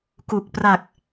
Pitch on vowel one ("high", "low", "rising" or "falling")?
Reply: low